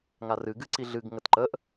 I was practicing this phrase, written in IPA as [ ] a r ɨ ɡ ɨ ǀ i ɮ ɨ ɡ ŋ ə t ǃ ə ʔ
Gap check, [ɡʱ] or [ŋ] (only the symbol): ŋ